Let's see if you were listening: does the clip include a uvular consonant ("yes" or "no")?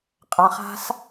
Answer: yes